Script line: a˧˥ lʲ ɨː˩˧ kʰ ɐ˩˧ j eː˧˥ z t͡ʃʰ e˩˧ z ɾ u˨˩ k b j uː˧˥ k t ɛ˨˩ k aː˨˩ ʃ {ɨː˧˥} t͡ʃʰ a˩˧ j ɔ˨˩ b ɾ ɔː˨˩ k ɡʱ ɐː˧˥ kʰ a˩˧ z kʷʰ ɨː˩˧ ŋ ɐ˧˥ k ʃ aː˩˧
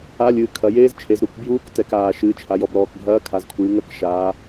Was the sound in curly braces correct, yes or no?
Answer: no